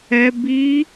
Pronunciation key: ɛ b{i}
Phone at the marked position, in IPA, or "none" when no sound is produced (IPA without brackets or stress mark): i